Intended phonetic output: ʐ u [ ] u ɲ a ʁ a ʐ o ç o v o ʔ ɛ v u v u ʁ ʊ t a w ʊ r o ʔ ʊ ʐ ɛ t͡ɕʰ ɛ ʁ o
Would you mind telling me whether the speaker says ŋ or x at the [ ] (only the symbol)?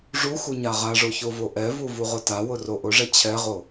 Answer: x